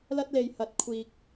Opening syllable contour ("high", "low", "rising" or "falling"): high